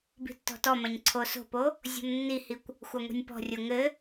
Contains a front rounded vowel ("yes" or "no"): no